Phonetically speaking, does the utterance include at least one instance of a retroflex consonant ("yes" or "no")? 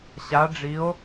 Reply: yes